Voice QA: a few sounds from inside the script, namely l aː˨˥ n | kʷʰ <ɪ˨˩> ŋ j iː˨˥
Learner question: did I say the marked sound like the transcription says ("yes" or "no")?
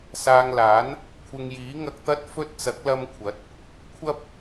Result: no